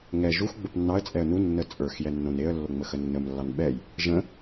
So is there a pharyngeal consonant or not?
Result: no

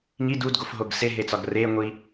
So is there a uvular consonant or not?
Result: no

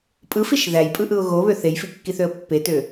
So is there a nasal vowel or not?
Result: no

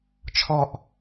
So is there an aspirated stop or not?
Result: yes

